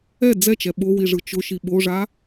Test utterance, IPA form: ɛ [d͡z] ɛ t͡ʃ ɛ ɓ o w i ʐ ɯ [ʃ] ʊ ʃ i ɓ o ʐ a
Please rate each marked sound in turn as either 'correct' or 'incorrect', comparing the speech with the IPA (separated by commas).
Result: correct, incorrect